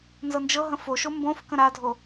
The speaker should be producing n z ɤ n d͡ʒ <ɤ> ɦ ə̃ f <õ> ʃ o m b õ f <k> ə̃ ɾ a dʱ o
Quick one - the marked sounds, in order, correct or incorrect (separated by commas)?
correct, incorrect, correct